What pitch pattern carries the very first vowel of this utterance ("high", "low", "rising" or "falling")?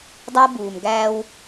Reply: high